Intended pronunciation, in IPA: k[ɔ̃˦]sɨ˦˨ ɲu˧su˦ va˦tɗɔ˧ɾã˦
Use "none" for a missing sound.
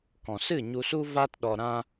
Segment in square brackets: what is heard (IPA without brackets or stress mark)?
ɔ̃˨